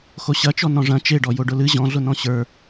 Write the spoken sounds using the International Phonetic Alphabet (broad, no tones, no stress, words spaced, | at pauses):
xoɕɐt͡ʃɔ nɔ̃ʐɐ̃ t͡ʃeɖɔ joɖʊlɨ ʑɔ̃ɮʊ nɔ̃ɕə˞